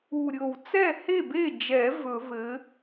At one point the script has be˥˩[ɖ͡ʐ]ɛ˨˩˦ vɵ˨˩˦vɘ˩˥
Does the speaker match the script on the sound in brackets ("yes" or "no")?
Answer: no